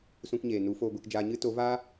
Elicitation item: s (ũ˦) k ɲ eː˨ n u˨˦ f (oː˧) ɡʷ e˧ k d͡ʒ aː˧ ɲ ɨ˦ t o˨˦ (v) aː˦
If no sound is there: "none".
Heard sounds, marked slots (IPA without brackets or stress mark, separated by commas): ũ˧, oː˧, v